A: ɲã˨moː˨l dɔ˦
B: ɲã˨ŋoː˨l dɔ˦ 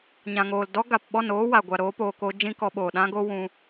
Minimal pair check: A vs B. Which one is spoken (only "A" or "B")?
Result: B